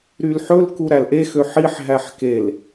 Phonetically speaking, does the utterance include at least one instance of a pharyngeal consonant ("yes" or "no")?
yes